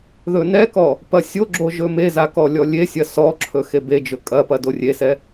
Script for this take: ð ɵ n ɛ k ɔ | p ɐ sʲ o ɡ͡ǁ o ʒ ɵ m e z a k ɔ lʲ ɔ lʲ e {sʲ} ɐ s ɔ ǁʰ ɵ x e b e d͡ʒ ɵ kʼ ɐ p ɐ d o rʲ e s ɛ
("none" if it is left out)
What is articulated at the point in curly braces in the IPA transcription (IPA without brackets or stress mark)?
sʲ